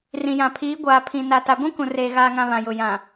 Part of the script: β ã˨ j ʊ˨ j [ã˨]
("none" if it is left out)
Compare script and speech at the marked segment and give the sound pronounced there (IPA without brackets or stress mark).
ã˨